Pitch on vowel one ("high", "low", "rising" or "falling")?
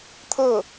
falling